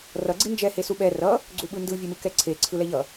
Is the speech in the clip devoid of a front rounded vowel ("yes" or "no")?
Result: yes